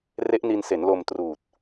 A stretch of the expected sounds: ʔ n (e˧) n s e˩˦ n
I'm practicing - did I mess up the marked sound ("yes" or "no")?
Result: yes